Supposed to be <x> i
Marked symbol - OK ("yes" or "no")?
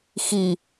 yes